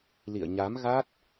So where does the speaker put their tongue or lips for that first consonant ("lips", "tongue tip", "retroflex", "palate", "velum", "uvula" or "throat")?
tongue tip